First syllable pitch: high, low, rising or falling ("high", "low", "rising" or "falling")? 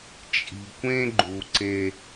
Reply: low